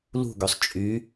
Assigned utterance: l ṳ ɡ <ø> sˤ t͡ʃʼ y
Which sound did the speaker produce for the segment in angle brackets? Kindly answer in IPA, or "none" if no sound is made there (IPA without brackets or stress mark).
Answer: ø